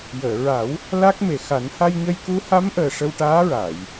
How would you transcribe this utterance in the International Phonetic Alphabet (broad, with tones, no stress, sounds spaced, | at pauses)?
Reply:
j əː˨˩˨ ɹ a˨˩˦ w | l a˦˥ k̚ m e˨˩ x a˨˩˦ n h a˧ j ɲ ə˧ j k u˧˥ h a˧˥ m ʔ əː˨˩ ʂ ə˧ w ʈ aː˧˥ ɹ a˨˩˨ j